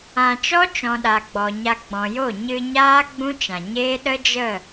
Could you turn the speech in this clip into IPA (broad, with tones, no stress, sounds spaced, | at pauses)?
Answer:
ã˨ t͡ʃ ɔ˦ t͡ʃ ɔ̃˨ ɗ a˨ ɡ͡b ɔ˨ ɲ a˧ ɡ͡b ɔ̃˨ j o˦˨ ɲ ɨ˧ ɲ aː˦ ɡ͡b ũ˦ t͡ʃ ã˨ ɲ eː˦ ɗ ə˦ d͡ʒ ə˦˨